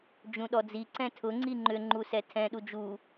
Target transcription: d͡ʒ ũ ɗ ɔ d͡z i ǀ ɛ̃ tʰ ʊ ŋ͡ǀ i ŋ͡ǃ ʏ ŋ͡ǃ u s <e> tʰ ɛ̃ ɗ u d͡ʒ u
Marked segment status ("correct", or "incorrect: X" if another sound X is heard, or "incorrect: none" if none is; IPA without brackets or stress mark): incorrect: ɛ